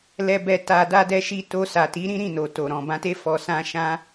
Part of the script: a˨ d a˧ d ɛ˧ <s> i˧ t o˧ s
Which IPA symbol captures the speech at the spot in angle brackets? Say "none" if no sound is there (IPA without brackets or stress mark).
ʃ